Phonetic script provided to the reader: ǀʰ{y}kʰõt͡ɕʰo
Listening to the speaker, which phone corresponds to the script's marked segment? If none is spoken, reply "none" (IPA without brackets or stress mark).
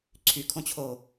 y